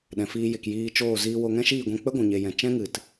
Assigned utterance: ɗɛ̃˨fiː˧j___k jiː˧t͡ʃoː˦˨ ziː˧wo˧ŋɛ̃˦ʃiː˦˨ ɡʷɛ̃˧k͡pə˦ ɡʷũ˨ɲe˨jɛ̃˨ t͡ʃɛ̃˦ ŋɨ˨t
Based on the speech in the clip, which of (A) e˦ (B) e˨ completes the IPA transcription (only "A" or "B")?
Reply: B